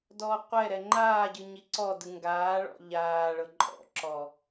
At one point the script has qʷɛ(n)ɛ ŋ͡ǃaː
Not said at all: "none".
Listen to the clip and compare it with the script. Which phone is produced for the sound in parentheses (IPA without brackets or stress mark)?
ɾ